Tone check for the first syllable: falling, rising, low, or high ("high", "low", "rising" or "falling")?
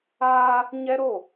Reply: high